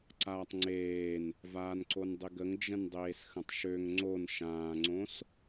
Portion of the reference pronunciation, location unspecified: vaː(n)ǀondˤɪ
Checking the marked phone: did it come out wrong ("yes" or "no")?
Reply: no